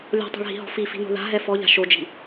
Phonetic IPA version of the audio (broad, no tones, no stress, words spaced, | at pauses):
lʲɔ̤tˤo̤ɭɦi̤ɦɔ̤ fifi̤no̤ ða̤ɦɛ fɔʎa̤ ʃod͡ʒi̤